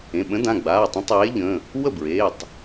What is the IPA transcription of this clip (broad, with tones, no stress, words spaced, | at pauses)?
ẽ˩˧˩ɓə̃˨˥dã˩˧˩ ɡ͡baː˩˧˩tˤə̃˨˥ tˤeː˨˥ʎə̃˩˧˩ | wə˥˩bɹeː˩˧˩tˤ